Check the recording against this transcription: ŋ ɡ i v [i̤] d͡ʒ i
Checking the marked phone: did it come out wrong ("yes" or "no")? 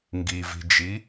no